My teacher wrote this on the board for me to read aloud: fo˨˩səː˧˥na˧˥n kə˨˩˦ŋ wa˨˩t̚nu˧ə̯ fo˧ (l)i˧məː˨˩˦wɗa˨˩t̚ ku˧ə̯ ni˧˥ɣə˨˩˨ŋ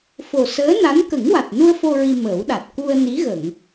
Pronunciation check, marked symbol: incorrect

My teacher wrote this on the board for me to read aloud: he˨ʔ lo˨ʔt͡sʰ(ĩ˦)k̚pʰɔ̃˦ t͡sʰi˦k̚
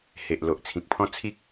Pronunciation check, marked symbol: incorrect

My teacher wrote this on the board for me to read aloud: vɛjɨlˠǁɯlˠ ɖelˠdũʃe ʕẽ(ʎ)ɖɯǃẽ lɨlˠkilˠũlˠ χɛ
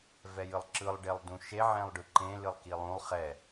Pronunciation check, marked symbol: incorrect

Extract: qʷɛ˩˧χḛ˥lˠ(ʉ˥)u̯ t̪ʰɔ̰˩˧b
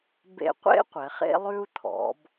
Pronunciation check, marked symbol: correct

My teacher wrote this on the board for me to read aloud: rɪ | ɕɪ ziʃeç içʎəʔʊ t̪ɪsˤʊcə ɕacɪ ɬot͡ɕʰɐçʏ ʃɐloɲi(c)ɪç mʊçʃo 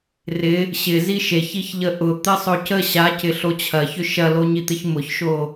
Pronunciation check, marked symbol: incorrect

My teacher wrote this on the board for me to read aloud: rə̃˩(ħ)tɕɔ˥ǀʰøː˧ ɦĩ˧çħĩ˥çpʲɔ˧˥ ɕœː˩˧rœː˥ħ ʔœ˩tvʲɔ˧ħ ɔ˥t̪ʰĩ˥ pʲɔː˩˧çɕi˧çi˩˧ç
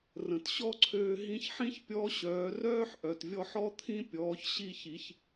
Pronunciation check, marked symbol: incorrect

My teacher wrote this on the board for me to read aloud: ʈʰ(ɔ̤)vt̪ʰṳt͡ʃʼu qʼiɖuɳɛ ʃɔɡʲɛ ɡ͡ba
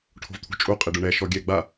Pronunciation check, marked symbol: incorrect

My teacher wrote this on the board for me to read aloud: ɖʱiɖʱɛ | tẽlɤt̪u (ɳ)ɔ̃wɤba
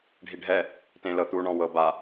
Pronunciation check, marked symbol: correct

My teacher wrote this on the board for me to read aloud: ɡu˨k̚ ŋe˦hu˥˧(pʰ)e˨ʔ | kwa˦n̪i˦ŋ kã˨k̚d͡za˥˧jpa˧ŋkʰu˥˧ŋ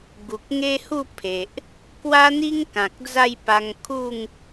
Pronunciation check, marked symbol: correct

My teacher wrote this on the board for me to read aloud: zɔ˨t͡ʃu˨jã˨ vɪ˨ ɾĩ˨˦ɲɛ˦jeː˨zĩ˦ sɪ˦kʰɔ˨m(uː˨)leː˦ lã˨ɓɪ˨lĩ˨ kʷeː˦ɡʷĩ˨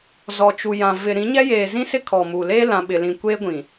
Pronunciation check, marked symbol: correct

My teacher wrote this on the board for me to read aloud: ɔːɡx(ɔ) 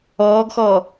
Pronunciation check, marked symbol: correct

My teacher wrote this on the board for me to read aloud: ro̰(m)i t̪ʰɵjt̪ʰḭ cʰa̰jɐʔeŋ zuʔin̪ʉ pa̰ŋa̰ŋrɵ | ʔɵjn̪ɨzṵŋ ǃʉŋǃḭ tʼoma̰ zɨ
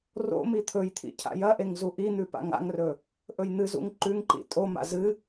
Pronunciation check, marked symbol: correct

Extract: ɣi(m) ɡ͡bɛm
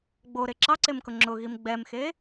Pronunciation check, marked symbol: correct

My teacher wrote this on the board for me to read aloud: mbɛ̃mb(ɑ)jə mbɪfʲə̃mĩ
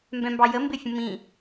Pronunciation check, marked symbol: correct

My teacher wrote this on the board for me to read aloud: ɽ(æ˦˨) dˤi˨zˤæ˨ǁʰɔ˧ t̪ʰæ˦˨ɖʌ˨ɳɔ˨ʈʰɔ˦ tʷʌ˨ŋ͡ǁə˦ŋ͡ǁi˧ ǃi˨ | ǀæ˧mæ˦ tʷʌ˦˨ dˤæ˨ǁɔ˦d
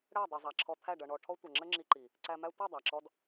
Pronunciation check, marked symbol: correct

